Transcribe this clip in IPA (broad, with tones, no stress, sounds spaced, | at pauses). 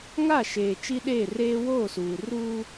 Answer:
ŋ a˦˨ ʃ eː˨ t͡ʃ i˦ ɗ eː˦˨ r eː˦ w oː˦˨ s uː˨ r uː˦